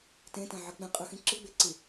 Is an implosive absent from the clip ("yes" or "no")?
yes